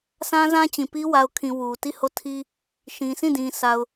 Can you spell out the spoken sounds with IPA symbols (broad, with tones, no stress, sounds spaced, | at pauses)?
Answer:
sʰ ã˦ z ã˦ t͡ɕ ĩ˨ p i˦ w a˨ ʊ̯ kʰ ĩ˨ w u˨ t i˦˨ h o˦˨ tʰ i˦ | ʃ ĩ˨ s ĩ˦˨ d ĩ˨ s a˨ ʊ̯